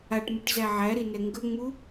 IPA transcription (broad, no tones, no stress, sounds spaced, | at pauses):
a ʈ m u ʈ z æ ʕ æ ɾ i n ɛ ŋ ɡ ə ŋ͡m u